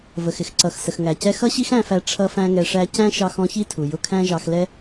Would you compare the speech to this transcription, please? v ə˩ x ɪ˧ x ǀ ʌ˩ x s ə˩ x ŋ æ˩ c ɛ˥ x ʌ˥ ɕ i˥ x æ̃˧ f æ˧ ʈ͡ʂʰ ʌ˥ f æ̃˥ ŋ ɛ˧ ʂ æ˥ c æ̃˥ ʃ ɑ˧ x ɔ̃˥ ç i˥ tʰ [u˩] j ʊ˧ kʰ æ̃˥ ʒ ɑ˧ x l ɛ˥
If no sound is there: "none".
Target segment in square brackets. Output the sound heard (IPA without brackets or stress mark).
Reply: u˩